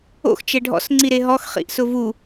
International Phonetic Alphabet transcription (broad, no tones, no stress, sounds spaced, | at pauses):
o̰ x t͡ʃ ɛ ɖʱ ɔ̰ s ŋ͡ǀ i ɾ e ɦ ɔ x χ ḭ ʔ s ʊ v u